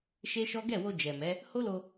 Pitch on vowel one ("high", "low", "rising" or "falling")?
high